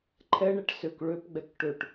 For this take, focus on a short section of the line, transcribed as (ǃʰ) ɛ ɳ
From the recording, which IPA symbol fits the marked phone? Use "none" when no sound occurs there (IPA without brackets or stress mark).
ǃʰ